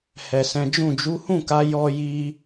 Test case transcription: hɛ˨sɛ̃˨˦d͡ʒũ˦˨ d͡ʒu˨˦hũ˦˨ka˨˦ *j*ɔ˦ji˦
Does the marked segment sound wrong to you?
no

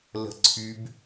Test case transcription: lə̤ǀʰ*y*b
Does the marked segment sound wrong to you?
no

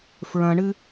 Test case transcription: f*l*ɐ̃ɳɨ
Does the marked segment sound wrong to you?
yes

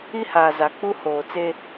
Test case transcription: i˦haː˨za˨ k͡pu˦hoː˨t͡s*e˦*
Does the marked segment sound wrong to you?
no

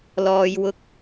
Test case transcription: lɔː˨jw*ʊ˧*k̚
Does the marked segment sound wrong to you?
no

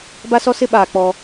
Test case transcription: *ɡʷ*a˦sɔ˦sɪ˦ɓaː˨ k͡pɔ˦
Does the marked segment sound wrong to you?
yes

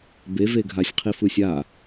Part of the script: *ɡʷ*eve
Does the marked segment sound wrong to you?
yes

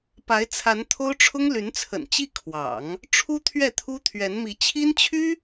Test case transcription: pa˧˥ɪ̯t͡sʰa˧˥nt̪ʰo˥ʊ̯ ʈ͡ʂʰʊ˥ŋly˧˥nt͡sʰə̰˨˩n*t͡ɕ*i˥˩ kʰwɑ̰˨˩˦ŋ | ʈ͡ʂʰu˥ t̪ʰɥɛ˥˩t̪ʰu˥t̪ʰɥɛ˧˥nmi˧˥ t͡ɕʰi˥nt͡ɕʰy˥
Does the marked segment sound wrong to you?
no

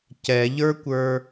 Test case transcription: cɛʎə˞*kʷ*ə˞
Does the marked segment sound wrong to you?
no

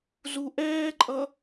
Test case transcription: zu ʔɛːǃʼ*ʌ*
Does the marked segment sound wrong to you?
no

